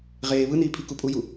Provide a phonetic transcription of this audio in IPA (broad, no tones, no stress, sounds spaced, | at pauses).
ʁ eː β ɯ n iː pʰ i k u pʼ u j u